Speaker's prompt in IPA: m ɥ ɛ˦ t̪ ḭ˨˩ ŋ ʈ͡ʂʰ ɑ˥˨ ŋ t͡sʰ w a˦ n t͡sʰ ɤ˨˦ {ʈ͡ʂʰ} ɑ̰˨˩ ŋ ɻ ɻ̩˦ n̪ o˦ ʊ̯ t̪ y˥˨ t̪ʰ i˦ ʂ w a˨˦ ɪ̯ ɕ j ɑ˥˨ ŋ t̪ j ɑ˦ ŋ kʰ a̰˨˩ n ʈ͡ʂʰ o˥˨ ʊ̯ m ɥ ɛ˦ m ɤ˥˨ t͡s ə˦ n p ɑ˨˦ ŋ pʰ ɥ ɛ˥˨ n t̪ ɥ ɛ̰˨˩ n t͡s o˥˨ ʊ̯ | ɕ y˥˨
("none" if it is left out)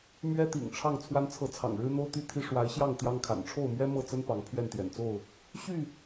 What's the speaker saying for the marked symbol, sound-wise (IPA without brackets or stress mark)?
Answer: t͡sʰ